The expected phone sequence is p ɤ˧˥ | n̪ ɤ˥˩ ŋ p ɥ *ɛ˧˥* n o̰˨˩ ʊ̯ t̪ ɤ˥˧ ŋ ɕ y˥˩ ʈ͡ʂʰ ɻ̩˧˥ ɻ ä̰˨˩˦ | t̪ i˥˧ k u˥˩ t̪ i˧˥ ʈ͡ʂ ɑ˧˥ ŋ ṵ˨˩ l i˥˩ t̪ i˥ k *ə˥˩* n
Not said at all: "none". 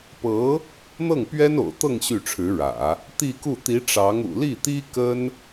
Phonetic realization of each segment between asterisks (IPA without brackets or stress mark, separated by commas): ɛ˥, ə˥